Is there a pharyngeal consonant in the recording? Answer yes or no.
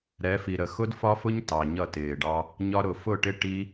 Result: no